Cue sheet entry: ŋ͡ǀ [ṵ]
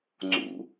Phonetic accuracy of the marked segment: correct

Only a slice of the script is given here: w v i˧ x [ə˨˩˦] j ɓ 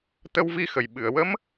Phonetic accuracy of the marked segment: incorrect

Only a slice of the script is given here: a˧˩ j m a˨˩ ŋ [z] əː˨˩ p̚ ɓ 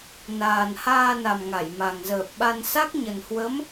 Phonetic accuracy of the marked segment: correct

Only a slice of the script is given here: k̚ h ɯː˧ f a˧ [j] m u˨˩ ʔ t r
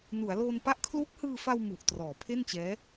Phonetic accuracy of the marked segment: incorrect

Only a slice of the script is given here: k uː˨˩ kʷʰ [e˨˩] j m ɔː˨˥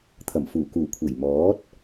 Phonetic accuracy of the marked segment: correct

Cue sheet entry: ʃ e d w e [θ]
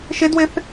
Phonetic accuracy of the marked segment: correct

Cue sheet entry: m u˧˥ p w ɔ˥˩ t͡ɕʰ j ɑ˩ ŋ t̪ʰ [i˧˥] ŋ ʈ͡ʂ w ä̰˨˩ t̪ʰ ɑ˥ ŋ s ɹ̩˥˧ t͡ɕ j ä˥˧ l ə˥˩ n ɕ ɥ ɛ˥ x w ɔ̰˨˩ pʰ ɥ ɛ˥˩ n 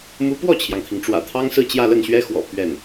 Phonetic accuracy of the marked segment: incorrect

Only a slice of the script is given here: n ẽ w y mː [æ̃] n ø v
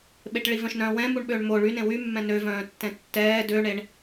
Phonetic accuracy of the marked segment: incorrect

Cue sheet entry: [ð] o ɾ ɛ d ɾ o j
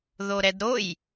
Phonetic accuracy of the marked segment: correct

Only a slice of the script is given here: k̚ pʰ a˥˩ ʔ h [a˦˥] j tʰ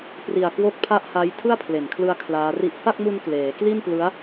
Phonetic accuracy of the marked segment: correct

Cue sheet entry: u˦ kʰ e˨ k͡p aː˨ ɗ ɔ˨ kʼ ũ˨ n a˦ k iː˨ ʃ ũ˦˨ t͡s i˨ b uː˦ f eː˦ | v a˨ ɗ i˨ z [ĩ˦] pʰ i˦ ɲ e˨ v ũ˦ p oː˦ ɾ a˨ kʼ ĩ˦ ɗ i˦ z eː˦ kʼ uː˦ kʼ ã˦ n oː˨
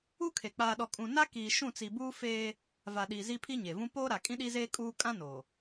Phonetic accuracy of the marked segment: incorrect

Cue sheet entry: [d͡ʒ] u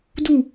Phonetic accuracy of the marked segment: incorrect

